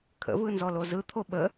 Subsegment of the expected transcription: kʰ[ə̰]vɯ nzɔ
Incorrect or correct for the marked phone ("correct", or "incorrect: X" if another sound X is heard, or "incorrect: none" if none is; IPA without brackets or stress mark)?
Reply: correct